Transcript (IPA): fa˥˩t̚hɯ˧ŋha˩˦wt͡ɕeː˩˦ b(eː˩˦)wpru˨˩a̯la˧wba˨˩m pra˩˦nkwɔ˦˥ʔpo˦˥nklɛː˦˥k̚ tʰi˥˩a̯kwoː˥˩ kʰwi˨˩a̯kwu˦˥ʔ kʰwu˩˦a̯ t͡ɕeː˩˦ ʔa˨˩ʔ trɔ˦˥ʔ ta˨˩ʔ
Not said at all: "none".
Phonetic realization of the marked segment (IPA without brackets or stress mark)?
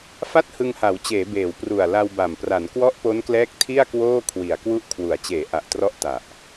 eː˩˦